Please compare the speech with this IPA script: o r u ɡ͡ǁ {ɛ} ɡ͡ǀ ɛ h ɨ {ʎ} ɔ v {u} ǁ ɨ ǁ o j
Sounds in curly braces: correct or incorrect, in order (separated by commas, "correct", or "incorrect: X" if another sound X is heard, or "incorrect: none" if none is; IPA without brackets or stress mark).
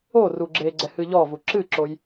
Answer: incorrect: e, correct, correct